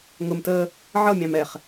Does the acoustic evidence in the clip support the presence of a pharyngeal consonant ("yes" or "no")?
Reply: yes